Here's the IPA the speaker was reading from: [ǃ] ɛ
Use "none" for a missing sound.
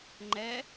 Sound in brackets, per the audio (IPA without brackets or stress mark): ŋ͡ǃ